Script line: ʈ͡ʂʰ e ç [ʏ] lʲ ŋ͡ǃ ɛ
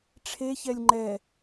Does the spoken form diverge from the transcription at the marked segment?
yes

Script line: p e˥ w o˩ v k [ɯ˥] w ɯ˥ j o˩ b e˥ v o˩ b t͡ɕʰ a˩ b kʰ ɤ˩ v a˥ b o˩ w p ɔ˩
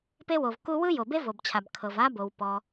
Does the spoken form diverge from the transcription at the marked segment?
yes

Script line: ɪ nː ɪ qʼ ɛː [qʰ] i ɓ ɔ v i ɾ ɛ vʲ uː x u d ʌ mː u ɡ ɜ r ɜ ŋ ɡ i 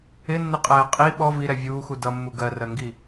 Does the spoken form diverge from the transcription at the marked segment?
yes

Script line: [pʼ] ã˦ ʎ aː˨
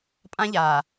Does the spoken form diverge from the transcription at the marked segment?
no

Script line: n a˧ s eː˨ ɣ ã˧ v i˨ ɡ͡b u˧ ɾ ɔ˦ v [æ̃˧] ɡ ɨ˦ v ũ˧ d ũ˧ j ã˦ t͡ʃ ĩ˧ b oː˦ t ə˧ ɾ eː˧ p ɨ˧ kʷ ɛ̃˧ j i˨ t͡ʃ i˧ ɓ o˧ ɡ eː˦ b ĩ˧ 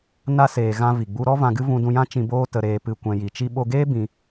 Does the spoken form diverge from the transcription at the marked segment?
yes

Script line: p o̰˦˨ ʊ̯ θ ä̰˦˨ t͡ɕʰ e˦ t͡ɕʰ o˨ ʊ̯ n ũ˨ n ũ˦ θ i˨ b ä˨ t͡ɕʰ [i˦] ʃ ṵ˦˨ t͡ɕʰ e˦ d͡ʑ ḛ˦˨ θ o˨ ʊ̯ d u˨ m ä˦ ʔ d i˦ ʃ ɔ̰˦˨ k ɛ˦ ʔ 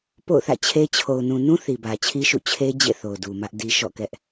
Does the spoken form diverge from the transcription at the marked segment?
no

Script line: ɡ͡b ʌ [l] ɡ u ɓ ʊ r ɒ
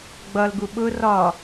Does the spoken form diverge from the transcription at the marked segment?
no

